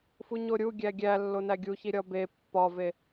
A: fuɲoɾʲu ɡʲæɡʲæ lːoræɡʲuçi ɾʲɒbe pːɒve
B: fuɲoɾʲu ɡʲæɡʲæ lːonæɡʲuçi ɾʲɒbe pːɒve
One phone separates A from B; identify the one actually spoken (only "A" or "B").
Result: B